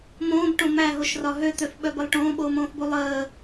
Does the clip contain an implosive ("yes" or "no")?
yes